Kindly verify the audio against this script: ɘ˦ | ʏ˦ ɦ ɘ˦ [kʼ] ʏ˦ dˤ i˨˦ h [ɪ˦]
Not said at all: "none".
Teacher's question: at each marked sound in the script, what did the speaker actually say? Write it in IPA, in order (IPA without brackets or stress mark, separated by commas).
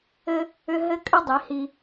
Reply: kʼ, i˦